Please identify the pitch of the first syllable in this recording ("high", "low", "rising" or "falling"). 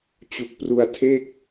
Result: low